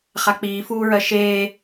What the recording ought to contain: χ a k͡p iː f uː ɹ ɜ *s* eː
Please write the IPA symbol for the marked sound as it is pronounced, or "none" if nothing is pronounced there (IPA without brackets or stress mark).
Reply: ʃ